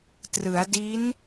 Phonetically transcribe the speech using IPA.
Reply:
t r ɯ˩˦ a̯ d i˦˥ n

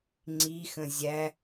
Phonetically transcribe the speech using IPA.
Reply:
ŋ͡ǀ i x ə̃ zʲ æ

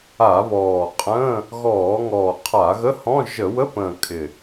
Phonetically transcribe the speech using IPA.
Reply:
a˧˩˧ β ɔː˨˩ qʼ ə̃ː˧˥˧ | ɣ ɔː˧˩˧ ŋ ɔː˨˩ qʰ a˧˩˧ ɣ ə˧˥˧ h ɔ̃˧˥˧ ʒ ə˧˩˧ w ə˧˥˧ p ə̃ː˨˩ kʼ ɪ˨˩

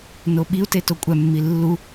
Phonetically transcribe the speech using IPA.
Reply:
n o ɓ i u̯ t e t o kʷʼ æ mː i lː u

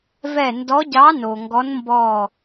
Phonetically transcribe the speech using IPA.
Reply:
v ɛ˦˨ n d ɔ˧˥ ɟ ɑ˧˥ n o˨ ŋ ɡ ɔ˧˥ n m b ɔ˦˨

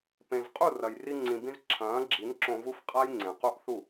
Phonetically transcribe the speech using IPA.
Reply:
p ẽ˨ z qʼ u˦˨ r ɐ˨ j r i˧ ŋ͡ǀ ĩ˨ b ĩ˧ z ǁʰ ɐ̃ː˨˦ ɡ͡ǁ i˨˦ n ǁ õ˧ v u˦ f qʼ a˦ j ŋ͡ǀ ẽ˨ q u˦ ʔ θ u˦˨

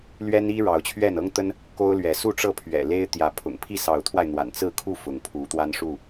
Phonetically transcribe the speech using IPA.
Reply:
l ɥ ɛ˦ n i˦ ɻ ɑ˨˦ ʊ̯ t͡ɕʰ ɥ ɛ˥˨ n ɤ˦ ŋ t̪ ə˦ n | k o˦ ʊ̯ l ɥ ɛ˨˦ s u˥˨ ʈ͡ʂ ɤ˥˨ pʰ ɥ ɛ̰˨˩ l e˦ ɪ̯ t̪ j ä˨˦ pʰ ʊ̰˨˩ ŋ pʰ i˥˨ s ɑ˨˦ ʊ̯ t̪ʰ w a˧ ɪ̯ n̪ w a̰˨˩ n t͡s ɹ̩˥˨ kʰ u˥˨ f ʊ˨˦ ŋ pʰ u˨˦ t̪ w a˦ n ʂ u˥˨

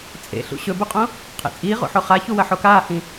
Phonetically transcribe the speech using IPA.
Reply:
t͡sʼ ḛ ɬ ṵ ɕ ɵ b u qʼ õ | qʰ ḛ t͡sʼ iː ʁ o̰ ħ o χ a ç u w ɐ ħ o k aː h ĩ

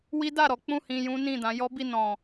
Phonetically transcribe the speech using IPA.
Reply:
w i˦ d a˦˨ ɾ ɔ˨˦ k͡p ũ˦˨ h ĩ˧ j ũ˦ n ĩ˦˨ d ã˨˦ j ɔ˦ b i˦˨ n ɔ̃˨

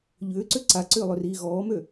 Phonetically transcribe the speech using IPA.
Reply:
ʎ ʏː ǀ ʏ ǀ a ǀ ʏː lˠ ʏ r iː ɣ ɔː m ø

